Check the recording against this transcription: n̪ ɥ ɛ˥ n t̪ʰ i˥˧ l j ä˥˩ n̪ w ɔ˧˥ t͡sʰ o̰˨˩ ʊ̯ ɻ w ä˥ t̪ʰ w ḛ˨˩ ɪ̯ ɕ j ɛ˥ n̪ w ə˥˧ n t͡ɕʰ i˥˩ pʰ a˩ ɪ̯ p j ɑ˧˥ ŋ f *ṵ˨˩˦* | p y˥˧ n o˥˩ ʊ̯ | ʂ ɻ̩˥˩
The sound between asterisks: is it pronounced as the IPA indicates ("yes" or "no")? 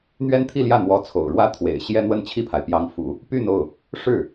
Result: yes